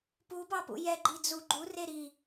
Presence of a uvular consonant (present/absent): absent